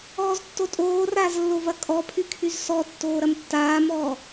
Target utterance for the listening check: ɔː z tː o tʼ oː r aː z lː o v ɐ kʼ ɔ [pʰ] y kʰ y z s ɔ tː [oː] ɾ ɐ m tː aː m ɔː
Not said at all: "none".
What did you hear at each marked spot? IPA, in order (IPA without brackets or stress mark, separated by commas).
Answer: pʰ, oː